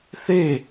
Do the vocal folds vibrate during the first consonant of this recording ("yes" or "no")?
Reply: no